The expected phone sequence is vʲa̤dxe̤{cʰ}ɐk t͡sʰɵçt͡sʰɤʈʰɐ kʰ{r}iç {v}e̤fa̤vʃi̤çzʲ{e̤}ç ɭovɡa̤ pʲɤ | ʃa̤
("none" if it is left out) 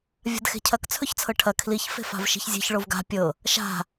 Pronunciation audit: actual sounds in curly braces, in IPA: cʰ, l, f, e̤

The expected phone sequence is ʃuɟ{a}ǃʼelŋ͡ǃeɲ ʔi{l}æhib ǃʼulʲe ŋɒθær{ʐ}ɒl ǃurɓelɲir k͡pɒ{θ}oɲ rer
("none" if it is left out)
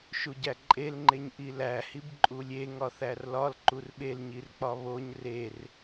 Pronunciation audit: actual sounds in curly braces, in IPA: æ, l, l, β

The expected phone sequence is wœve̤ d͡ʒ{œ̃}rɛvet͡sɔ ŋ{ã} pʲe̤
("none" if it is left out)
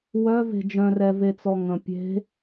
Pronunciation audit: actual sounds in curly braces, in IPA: œ̃, ə̃

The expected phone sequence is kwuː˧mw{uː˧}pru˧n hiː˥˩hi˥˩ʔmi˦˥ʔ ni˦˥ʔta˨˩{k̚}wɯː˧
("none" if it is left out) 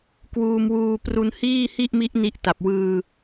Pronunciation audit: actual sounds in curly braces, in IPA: uː˧, p̚

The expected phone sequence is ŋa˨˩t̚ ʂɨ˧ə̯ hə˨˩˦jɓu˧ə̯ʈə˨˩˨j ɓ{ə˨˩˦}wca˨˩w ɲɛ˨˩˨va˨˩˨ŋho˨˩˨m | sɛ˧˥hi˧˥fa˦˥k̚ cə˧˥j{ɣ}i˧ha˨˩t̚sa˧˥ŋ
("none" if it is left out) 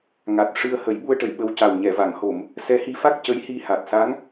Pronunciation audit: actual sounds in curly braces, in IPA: ə˧, h

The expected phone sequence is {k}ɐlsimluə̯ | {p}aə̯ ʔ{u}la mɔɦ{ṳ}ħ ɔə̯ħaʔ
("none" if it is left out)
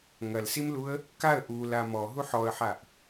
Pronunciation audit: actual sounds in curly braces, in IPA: ŋ, k, u, u

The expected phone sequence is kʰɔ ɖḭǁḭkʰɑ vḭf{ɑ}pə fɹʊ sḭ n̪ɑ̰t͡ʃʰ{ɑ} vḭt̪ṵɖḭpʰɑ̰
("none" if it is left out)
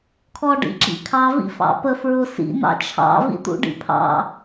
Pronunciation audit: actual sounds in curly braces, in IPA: ɑ̰, ɑ̰

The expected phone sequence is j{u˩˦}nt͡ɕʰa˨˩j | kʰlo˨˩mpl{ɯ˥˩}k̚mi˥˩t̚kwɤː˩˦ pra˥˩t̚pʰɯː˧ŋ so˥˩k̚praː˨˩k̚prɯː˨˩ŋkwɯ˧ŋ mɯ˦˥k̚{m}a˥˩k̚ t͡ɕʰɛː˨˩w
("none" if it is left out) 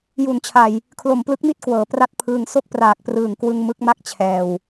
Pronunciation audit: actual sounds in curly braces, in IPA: u˩˦, ɯ˦˥, m

